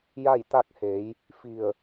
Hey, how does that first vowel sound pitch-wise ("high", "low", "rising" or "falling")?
falling